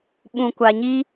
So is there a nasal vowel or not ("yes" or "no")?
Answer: yes